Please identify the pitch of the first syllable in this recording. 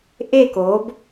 falling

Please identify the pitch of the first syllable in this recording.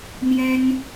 high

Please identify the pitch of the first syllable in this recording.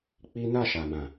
high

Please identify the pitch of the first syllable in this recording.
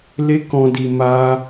high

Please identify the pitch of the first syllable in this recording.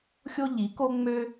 high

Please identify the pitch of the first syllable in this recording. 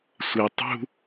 low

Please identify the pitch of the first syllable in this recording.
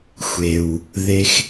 low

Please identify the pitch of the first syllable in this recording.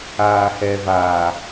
low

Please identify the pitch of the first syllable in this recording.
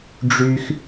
high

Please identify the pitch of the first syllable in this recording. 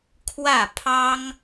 falling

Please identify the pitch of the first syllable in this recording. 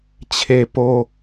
low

